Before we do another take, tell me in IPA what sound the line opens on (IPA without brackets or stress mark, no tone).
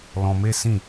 l